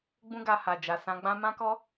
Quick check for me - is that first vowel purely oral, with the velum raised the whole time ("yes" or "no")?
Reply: no